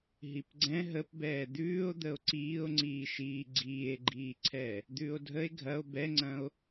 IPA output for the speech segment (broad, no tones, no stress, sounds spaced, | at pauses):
ɦ i p ɡ͡ǀ ɛ̃ ɦ ə p b ɛː d̪ ʉː o̯ d̪ ə o̯ ǀ iː o̯ ŋ͡ǀ iː ʃ iː ɡ͡ǀ iː e̯ ɡ͡ǃ iː ǀʰ ɛ | d̪ ʉː o̯ dʱ ə e̯ ɡʱ ɐ o̯ b ɛ ŋ͡ǀ ɐ̃ o̯